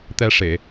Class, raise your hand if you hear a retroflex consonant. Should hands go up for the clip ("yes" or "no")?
yes